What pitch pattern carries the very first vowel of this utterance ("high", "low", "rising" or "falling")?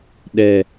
low